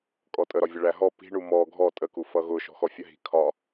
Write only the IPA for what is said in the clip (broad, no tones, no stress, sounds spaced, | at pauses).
kʼ ɔ tʼ ə ɾ ɒ vʲ ʌ ɭ æ ɦ ɔ p i̤ ɳ u m ɔ ɡʱ ɔ tʼ ə k u f ʌ ɣ ʊ ʃ ɔ̤ x ɔ fʲ ə ɦ i̤ kʰ ɒ